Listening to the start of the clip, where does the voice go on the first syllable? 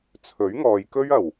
rising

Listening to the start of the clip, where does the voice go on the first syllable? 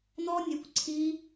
high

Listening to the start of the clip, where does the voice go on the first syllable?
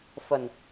low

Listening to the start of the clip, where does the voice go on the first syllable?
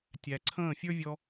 low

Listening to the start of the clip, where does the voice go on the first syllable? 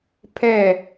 falling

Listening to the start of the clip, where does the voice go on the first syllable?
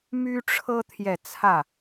high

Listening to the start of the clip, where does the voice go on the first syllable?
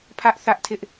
high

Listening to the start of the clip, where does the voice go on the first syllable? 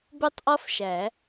high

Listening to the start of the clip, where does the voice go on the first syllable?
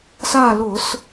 falling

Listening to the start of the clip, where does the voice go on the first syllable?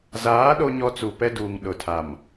rising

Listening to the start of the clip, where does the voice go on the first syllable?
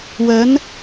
rising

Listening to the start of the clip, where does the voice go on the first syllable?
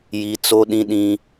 high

